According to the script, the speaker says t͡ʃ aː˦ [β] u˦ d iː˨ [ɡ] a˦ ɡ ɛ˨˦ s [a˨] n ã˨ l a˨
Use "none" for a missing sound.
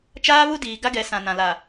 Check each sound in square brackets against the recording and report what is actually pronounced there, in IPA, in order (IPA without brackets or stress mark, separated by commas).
β, ɡ, ã˨